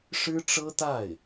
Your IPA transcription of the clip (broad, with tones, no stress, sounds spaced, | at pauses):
ʂ ɻ̩˥ ʈ͡ʂ ɤ˥ t̪ a˥˩ ɪ̯